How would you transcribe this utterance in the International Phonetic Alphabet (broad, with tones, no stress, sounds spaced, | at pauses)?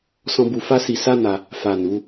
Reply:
s ɔ̃˧ b u˧ f a˦ s i˧ s a˦ n a˧ | f a˨ n u˨˦